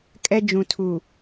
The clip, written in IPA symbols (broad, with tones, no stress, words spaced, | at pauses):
kʼɛ˦ d͡ʒũ˨tʰu˨